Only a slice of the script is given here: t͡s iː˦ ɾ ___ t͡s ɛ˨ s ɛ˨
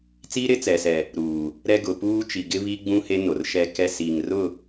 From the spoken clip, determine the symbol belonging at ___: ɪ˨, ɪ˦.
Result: ɪ˦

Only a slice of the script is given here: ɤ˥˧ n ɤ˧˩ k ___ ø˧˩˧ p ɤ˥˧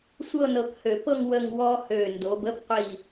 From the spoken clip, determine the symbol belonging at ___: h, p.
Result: h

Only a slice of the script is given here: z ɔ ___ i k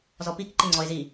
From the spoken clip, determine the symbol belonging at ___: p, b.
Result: p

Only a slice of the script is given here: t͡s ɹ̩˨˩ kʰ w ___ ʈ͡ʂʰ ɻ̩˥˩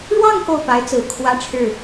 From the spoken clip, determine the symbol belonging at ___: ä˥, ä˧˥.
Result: ä˥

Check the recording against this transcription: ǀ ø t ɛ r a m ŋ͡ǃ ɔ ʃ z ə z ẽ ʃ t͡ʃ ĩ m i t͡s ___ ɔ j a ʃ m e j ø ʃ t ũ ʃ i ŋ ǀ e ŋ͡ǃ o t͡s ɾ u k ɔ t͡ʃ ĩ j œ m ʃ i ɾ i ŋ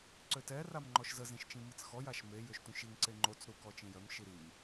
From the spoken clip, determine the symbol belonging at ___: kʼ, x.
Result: x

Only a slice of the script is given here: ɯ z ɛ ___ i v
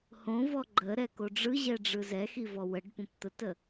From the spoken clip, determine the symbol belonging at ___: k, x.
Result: x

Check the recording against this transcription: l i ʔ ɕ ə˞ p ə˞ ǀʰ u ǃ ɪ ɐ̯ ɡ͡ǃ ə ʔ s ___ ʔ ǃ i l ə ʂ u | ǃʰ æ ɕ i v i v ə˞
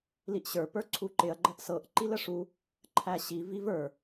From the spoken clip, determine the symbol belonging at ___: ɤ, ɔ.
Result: ɤ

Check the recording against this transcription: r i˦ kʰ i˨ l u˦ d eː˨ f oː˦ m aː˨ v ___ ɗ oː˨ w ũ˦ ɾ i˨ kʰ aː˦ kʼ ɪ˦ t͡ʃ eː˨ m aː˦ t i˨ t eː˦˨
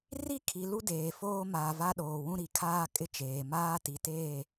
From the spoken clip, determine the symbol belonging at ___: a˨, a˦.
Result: a˦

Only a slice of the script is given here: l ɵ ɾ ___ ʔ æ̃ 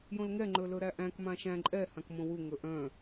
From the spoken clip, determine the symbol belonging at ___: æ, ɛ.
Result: æ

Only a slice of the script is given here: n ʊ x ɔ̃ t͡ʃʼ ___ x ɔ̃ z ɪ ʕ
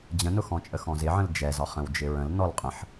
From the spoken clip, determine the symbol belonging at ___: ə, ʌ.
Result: ə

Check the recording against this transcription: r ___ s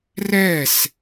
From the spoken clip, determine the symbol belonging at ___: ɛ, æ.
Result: ɛ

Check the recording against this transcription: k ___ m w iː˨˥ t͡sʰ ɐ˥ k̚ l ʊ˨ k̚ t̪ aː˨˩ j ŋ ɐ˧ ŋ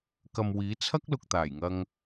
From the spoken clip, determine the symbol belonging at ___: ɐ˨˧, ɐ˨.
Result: ɐ˨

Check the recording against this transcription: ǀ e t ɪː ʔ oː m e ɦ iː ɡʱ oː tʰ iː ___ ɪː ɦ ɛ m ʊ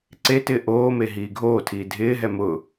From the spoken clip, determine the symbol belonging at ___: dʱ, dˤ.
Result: dʱ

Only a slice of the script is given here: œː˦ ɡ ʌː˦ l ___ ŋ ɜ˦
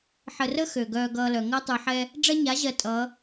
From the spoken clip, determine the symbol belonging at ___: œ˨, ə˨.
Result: œ˨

